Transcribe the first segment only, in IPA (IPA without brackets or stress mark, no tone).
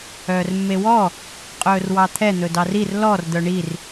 œː